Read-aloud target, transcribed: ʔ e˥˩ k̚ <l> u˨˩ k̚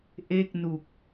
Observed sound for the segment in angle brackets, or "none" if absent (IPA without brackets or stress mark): n